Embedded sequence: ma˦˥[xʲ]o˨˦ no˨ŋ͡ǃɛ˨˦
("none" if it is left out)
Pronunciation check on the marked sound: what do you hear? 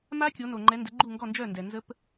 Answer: kʲ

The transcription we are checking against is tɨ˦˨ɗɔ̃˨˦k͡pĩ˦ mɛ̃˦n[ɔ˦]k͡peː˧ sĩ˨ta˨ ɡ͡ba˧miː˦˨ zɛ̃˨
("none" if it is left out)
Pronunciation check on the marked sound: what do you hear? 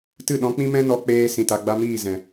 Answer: ɔ˧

